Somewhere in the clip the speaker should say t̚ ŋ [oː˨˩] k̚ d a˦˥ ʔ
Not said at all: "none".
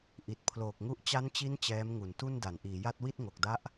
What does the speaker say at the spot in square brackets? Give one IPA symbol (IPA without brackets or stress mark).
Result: o˨˩